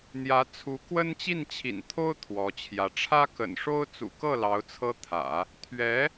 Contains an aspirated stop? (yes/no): yes